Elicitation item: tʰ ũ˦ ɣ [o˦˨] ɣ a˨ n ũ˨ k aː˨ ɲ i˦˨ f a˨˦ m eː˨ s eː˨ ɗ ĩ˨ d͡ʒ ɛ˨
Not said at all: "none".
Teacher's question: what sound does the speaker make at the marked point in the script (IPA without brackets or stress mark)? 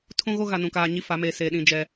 o˦